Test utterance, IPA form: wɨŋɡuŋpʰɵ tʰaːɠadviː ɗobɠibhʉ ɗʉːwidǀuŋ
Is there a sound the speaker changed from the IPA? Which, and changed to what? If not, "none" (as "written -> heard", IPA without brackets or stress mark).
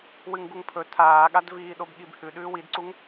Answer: none